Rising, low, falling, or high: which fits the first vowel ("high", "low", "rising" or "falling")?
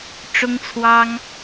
high